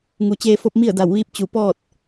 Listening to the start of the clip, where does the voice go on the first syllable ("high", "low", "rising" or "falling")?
low